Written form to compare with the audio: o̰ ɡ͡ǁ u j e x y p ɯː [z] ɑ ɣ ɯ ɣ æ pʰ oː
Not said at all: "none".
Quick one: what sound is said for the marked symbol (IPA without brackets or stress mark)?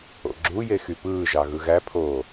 ʒ